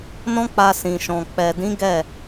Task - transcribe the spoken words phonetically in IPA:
n ɔ̃˦ k͡p a˧ s ĩ˨ ʃ ɔ̃˨ k͡p ɛ˨ d ĩ˨˦ ɡ ɛ˦˨

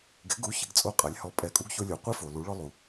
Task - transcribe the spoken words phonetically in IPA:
ɡ ɪ˩˥ ɡ u˩˥ ç ɪ˩˥ ɡ t͡sʼ o˧ qʼ a˩˥ lʲ h ɔ˩˥ pʼ ɛ˩˥ kʼ u˩˥ ɡ ç o˧ lʲ o˩ qʷ ɪ˧ f o˩ l u˩˥ ɭ ɔ˧ lˠ u˩

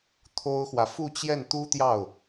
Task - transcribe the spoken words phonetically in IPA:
t̪ʰ o˥ ʊ̯ x w ä˨ f u˥˧ t͡ɕ j ɛ˥˩ n t̪ u˥ t̪ j ɑ˥˩ ʊ̯

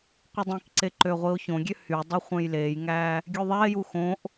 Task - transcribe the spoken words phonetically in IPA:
qʷ i dˤ ĩ k ǀ e ǃ ø ʁʷ i o̯ ç õ ɡʲ ø h y dˤ œ χʷ ẽ j l eː j ŋ æː | ɡʲ ʉ ðˤ æ e̯ j u x õ ʔ

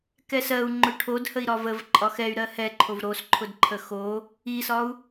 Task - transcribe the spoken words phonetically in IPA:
k ɛ s ɜ u̯ ŋ͡ǃ ʊ ʈʰ o d h ə i̯ ɾ ɒ v ə v ǃʼ ɒ x ɛ y̯ ɾ ɜ h ɛ ǃʰ o v ɾ o s ǃʰ ʊ d ǃʰ ə x o | i s ɒ u̯

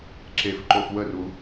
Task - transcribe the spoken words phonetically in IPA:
ǁ e f ǃ o f w ə r u

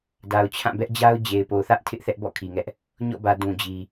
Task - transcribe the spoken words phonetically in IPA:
d a˨ ʊ̯ t͡ɕʰ ã˦˨ b ɛ˦ ʔ d͡ʑ a˦ ʊ̯ d͡ʑ e˨ ɪ̯ p o˨ θ ä˦ ʔ tʰ ɪ˦ ʔ θ ɛ˦ ʔ b ɔ̰˦˨ kʰ i˨ ŋ ɛ˦ ʔ | ɲ ɔ̰˦˨ b ä˨ d ũ˨ d͡ʑ i˨

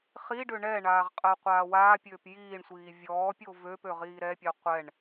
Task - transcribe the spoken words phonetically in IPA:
χ i ɖ ø ɳ ɛ ɳ aː ʁ qʼ əː qʷ aː w aː pʲ øː p j iː ɳ sʷ iː vʲ ɔː pʲ o v ø p ø ʁ iː ɾ ɛ pʲ ɛ qʷ ɛ ɳ

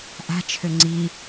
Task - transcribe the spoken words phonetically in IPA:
ʔ a̤ t͡ʃʰ ø ŋ͡ǀ i

